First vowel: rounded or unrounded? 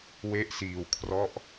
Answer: unrounded